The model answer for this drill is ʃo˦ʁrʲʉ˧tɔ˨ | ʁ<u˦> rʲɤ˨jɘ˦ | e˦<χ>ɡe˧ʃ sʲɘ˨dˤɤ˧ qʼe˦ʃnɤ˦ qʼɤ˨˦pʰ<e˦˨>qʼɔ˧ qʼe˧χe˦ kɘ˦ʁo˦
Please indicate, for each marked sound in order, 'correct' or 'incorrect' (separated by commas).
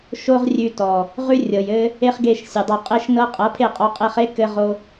incorrect, correct, correct